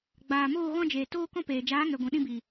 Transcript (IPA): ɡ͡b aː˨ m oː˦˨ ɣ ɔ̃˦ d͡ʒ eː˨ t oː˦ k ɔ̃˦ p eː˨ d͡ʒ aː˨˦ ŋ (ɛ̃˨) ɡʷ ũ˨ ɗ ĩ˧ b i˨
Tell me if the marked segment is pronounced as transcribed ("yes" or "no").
no